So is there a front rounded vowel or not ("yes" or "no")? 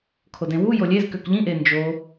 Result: yes